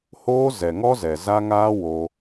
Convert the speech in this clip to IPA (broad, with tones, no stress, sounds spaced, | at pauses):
h oː˦ z ɛ˨ ŋ ɔ˦ z ɛ˨ z a˦ ŋ aː˦ w o˧